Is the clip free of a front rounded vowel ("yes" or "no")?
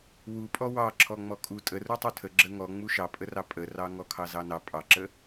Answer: yes